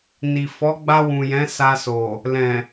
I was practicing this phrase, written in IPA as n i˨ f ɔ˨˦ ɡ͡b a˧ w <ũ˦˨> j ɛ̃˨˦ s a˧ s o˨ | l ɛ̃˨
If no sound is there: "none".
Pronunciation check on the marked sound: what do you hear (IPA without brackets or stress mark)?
ũ˨